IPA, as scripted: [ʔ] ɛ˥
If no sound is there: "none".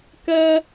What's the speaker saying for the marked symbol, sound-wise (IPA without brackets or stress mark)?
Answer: k